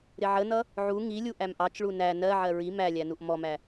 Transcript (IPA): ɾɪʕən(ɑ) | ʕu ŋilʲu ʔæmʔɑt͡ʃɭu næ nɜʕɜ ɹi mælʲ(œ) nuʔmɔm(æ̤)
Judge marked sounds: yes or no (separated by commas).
no, no, no